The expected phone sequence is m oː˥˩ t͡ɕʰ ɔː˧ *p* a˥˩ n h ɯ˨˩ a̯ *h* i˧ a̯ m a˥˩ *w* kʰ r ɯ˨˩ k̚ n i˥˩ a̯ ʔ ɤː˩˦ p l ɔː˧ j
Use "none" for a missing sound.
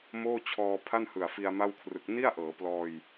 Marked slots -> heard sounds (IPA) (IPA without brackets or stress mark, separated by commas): pʰ, f, w